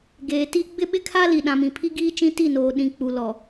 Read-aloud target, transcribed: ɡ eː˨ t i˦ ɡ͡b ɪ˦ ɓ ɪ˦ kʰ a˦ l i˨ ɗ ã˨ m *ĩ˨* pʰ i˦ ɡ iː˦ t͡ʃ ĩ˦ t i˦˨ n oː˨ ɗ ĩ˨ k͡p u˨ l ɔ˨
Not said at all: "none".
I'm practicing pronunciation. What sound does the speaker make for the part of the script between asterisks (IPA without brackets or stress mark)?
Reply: ĩ˨